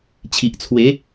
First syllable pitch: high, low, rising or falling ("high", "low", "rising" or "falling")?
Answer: low